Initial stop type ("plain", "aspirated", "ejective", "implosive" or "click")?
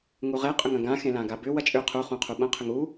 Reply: ejective